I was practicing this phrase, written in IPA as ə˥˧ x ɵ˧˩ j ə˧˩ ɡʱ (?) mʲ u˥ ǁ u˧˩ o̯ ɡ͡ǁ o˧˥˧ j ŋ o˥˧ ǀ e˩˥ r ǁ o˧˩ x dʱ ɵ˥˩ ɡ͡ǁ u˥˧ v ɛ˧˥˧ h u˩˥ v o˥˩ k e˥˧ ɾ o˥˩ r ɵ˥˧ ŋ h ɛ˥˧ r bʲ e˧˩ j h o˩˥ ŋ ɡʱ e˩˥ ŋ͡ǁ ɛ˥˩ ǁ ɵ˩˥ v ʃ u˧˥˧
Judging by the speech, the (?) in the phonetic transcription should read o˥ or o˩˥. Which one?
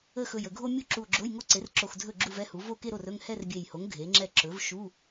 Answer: o˥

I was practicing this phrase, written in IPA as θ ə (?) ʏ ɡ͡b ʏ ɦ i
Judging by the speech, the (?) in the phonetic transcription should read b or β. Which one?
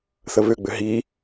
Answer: β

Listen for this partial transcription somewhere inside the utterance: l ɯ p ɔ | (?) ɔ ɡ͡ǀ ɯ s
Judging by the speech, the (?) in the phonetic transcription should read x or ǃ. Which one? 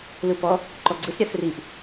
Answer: ǃ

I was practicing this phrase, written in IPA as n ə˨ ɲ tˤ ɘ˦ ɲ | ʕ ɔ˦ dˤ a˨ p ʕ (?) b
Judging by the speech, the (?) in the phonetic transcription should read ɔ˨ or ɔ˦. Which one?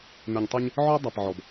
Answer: ɔ˨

